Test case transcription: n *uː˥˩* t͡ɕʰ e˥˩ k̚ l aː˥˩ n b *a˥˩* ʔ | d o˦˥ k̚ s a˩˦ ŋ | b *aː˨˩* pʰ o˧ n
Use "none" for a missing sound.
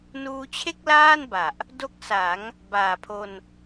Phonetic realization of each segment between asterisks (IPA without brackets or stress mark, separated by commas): uː˧, a˨˩, aː˨˩